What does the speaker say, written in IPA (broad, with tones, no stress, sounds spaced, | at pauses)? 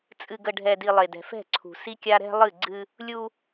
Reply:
t͡sʼ ɨ˨ ɡ ə˨ ɖʱ ɛ˨ d i˨ lˠ e˨ d ɛ̤˨ f ɛ̤˦˨ ǀʰ ṳ˨ s i˦ kʲ a˦ ɾ ɛ̤˦ lˠ ɨ˦˨ ɡ͡ǀ ɨ˦ | lʲ u˦